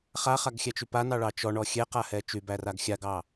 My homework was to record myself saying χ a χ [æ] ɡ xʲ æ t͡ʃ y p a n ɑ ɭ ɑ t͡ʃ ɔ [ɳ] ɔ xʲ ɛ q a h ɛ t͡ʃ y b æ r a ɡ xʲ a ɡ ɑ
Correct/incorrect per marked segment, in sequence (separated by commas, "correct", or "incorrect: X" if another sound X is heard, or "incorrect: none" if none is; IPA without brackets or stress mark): incorrect: a, correct